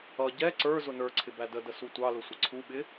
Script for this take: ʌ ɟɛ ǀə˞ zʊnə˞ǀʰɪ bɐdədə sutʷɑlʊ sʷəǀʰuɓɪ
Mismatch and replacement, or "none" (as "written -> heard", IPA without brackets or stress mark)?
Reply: ɐ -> æ